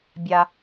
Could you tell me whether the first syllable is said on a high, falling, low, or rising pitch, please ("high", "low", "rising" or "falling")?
low